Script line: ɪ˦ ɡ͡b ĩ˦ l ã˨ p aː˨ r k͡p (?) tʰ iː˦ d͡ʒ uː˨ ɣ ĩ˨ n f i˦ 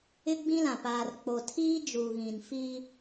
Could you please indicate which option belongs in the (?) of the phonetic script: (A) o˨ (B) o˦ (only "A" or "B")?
A